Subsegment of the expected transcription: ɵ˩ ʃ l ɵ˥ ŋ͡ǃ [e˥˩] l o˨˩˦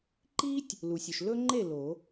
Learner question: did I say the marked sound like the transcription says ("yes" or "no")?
yes